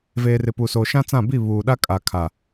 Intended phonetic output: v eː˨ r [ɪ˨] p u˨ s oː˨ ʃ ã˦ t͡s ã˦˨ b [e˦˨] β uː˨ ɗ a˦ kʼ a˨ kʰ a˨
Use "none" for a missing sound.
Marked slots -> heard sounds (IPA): ɪ˨, i˦˨

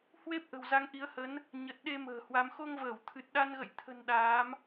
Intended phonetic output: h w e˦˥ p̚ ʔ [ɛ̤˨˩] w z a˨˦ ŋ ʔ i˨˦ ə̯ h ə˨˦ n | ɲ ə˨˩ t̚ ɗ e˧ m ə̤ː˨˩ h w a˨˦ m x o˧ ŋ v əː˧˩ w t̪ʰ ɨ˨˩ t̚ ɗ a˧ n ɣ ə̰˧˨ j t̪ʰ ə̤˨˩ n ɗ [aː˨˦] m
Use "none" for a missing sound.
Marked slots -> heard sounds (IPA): ə̤˨˩, aː˨˦

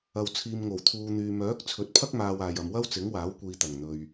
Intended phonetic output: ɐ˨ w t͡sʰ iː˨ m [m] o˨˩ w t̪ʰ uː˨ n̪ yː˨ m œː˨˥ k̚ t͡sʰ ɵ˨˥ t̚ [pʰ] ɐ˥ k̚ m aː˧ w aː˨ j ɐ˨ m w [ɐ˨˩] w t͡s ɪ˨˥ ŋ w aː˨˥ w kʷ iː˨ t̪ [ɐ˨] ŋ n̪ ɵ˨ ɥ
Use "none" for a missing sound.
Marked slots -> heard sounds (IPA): ŋ, pʰ, ɐ˥, ɐ˨˩

